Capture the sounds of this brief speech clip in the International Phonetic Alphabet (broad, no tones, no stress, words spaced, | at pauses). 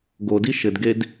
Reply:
ɡo diʃɘdɡed